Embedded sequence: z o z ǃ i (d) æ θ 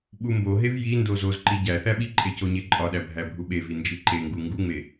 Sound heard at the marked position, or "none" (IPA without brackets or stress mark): ɟ